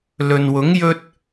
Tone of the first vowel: low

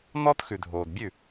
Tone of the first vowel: high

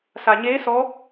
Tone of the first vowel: low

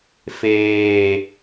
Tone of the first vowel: low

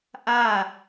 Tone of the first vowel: falling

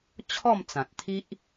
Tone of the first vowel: falling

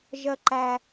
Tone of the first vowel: high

